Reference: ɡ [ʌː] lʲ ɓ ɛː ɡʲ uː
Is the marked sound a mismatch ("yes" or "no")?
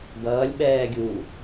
no